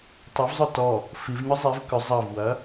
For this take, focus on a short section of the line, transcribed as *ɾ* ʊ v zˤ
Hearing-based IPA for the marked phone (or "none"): tˤ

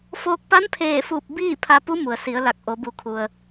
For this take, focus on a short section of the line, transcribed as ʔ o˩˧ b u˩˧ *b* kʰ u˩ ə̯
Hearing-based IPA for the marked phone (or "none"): none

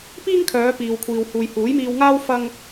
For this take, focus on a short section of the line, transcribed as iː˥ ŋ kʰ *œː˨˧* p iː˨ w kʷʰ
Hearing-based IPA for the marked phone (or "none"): œː˨˧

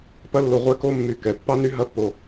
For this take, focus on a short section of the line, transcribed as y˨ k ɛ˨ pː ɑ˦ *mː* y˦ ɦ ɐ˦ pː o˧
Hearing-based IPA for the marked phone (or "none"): n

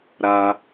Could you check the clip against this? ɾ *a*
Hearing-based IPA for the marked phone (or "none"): a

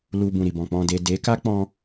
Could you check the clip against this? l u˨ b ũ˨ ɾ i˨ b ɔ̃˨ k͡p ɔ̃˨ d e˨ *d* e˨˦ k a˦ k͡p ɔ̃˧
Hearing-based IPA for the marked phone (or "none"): d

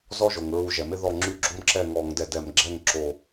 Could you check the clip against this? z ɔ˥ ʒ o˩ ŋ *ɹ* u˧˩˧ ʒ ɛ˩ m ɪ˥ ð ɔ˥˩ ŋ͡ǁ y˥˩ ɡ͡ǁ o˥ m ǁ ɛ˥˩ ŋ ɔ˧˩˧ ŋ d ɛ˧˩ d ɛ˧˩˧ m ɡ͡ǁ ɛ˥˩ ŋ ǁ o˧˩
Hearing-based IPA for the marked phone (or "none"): ɹ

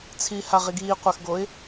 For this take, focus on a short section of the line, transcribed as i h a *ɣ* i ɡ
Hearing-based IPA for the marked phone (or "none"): ʁ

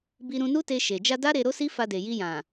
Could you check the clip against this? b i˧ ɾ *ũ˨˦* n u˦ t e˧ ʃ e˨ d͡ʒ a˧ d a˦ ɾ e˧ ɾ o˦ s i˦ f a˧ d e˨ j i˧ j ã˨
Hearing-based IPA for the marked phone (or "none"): ũ˧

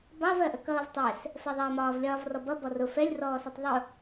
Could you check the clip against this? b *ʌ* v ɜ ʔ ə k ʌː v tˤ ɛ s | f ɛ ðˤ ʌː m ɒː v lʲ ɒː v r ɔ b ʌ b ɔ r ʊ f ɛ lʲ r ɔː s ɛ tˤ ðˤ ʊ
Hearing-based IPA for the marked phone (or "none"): ɑ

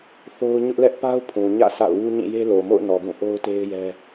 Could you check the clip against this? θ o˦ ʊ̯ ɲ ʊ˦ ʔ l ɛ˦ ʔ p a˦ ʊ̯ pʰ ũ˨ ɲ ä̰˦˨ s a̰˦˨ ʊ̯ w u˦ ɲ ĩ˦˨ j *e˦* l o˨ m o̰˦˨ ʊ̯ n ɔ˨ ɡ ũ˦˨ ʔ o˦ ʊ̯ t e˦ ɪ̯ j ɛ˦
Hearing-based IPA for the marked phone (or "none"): e˦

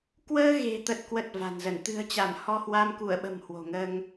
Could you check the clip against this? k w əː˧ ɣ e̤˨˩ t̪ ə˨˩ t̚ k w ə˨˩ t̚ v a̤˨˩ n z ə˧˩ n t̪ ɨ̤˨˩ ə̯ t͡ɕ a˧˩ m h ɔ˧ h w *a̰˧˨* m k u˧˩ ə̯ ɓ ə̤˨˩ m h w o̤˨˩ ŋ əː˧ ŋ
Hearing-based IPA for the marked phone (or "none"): a˧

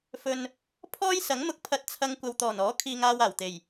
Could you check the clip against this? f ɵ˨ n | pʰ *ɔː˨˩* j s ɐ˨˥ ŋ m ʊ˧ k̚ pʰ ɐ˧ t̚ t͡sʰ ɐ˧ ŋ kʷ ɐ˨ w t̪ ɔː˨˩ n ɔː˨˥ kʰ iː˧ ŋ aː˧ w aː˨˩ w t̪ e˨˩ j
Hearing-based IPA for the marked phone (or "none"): ɔː˥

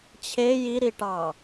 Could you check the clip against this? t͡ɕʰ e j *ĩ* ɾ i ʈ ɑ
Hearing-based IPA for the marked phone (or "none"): i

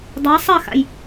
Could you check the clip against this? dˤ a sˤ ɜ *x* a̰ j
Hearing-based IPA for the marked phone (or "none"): x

